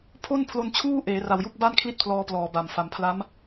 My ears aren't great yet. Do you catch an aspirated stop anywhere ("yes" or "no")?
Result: yes